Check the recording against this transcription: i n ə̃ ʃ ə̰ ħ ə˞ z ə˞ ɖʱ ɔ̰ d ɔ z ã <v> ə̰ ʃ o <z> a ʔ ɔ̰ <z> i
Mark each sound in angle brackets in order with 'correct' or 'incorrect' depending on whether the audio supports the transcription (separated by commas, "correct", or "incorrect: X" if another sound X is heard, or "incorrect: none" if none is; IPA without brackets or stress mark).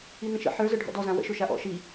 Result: incorrect: w, incorrect: ʃ, incorrect: ʃ